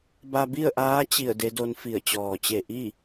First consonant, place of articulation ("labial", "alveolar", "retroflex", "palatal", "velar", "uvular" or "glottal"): labial